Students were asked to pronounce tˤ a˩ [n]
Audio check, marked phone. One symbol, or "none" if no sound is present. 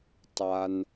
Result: n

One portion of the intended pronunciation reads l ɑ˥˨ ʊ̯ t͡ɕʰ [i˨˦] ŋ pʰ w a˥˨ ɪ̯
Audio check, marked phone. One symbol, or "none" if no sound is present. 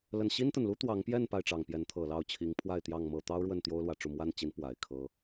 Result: i˨˦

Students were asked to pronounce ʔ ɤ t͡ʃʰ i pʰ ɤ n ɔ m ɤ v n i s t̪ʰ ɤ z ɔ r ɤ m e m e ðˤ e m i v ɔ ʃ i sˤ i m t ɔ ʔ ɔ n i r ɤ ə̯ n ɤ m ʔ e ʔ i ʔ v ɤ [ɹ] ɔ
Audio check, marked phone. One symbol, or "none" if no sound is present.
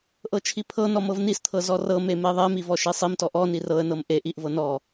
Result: n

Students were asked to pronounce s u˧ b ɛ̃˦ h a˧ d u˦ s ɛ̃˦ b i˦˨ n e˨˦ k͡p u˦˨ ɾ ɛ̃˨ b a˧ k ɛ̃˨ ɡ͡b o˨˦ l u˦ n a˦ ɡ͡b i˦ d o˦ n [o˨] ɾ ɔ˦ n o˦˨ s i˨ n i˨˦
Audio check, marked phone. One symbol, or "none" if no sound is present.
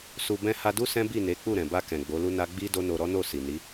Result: o˧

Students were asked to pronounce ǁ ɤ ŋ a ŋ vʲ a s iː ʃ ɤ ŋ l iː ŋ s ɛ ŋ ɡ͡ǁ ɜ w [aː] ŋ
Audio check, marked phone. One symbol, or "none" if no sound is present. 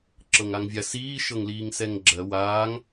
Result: aː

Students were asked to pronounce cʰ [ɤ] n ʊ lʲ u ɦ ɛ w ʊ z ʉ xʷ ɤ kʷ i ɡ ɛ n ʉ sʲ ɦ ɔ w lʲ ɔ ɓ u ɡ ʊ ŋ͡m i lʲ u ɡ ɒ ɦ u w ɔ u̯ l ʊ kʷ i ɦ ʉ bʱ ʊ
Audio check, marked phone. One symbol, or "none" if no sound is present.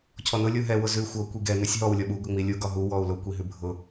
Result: ɔ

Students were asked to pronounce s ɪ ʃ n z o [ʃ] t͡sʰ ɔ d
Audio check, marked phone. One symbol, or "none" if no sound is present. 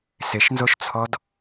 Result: ʃ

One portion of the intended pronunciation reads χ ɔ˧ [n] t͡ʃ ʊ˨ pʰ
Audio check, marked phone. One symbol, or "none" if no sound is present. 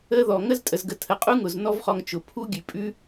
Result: ŋ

